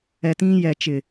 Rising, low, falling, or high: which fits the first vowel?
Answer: low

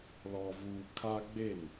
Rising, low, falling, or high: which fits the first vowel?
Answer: low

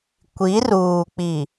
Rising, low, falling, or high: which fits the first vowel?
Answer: rising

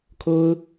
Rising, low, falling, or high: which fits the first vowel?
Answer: high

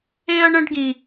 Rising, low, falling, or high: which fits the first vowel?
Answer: high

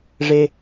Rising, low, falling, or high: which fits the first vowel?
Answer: low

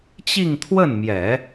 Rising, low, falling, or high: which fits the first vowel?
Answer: falling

